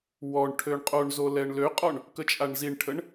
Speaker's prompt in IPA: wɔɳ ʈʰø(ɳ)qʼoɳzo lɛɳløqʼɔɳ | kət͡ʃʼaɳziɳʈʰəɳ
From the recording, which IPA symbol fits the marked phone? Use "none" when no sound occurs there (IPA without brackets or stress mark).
ɳ